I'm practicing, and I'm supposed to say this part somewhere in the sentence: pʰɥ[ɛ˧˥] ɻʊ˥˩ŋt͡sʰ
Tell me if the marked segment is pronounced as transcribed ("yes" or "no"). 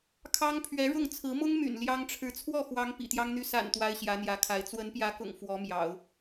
yes